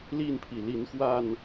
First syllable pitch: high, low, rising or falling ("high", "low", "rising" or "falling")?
falling